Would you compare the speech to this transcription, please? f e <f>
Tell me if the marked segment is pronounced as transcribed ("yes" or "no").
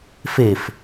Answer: yes